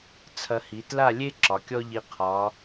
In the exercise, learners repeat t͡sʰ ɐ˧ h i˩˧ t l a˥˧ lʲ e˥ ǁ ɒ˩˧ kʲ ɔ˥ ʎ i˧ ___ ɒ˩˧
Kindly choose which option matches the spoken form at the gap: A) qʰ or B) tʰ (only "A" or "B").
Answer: A